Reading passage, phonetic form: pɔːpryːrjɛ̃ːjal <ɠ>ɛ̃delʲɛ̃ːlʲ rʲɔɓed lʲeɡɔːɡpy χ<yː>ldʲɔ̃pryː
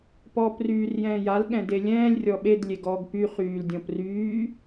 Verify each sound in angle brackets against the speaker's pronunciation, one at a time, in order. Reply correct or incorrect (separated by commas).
correct, correct